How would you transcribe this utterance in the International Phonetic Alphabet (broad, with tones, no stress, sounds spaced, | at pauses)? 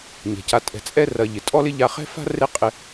ɲ e̤˩ c a˨ tʼ ɛ̤˨ t͡sʼ ɛ˦ r ɐ˨ ʎ ɪ˩ tʼ ɔ˥ l ɪ˥ ʎ a˦ χ ɛ̤˥ f a̤˥ r e˦ qʼ ɪ˦